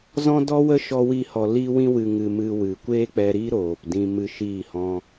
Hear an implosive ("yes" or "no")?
no